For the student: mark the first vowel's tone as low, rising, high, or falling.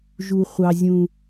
high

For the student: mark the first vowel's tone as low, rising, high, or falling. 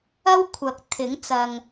high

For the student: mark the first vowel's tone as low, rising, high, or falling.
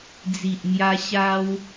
low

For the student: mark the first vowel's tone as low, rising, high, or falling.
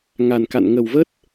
low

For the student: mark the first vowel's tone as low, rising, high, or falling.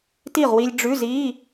falling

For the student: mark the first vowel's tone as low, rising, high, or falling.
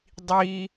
high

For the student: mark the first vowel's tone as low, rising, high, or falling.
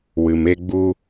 low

